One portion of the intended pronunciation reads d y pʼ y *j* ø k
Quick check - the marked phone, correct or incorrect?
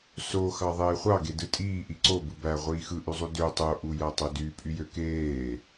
correct